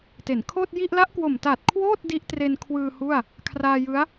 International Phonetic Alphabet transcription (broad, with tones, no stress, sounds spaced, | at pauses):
t e˩˦ n kʰ oː˥˩ t̚ j i˥˩ ʔ l a˦˥ ʔ k w o˨˩ m t aː˨˩ t̚ kʰ w oː˥˩ t̚ d i˦˥ ʔ t r e˧ n kʰ w ɯː˧ h u˥˩ a̯ | kʰ r aː˧ j ɯ˦˥ a̯